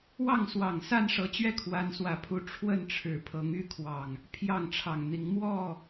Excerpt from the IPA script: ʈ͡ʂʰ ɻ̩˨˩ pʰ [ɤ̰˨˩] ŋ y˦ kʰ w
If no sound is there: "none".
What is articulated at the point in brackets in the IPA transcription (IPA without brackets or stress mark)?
ɤ˨˦